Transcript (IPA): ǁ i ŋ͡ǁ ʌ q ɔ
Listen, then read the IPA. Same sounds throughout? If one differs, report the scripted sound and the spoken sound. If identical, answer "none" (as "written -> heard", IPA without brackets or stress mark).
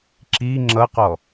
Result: none